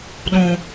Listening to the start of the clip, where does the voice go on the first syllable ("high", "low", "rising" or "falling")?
low